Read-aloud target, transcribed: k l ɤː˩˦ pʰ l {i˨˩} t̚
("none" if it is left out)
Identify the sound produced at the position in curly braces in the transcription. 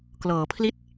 i˥˩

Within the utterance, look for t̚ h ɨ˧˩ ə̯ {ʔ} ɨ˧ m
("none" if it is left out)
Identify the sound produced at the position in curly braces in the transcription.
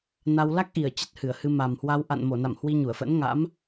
h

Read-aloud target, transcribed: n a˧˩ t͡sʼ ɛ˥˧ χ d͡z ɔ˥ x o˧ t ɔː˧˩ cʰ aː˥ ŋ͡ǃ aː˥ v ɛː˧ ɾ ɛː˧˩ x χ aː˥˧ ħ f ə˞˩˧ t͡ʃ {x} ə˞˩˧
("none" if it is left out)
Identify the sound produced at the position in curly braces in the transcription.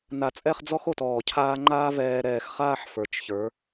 ç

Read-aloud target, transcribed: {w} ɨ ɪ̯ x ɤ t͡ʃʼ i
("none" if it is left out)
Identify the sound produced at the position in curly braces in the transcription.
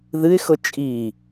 ð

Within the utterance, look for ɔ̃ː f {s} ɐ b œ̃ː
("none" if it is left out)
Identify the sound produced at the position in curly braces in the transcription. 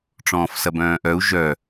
s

